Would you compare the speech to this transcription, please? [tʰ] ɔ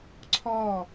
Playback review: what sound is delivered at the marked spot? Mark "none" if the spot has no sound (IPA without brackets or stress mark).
ǀʰ